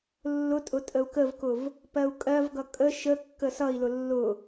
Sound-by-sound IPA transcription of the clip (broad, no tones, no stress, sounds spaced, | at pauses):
lː ʊ tʼ ʊ tʼ ə u̯ k ə v k ʊ v | p ɜ u̯ kʼ ɜ v ɡ ʌ kʼ ə ʃ ə kː ə s ʌ i̯ l ʊ lː ʊ